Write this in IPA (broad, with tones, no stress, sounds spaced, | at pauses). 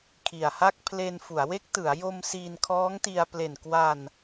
kʰ i˨˩ a̯ h a˥˩ k̚ pʰ l e˧ n f u˩˦ a̯ w e˦˥ k̚ t ɯ˩˦ a̯ j o˧ m s iː˧ n kʰ ɔː˦˥ ŋ t i˧ a̯ p l e˨˩ n k w a˧ n